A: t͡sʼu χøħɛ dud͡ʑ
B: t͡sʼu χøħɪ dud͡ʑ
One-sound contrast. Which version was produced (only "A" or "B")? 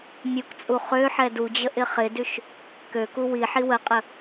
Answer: A